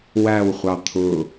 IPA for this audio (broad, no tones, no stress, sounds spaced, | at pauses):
w æ w χʷ ɑ t̪ʰ ʊ